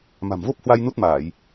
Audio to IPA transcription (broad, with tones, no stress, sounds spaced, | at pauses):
m a̤˨˩ m v o˦˥ p̚ h w a˧ j n u˦˥ t̚ m aː˧˩˨ j